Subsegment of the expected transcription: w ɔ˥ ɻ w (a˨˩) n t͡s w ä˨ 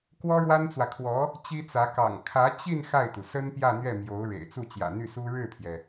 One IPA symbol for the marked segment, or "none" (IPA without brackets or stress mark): a˥